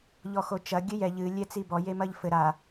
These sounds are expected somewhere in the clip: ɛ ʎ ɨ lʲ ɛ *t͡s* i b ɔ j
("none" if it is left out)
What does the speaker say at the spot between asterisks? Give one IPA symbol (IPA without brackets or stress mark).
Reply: t͡s